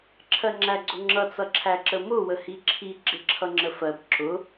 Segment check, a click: present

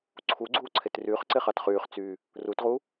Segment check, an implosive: absent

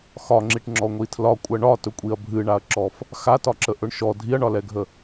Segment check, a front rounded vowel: absent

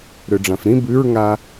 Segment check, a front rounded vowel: present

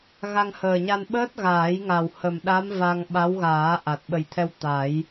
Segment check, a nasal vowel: absent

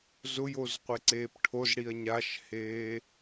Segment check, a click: present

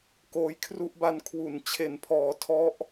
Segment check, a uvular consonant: absent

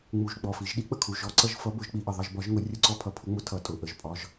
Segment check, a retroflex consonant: absent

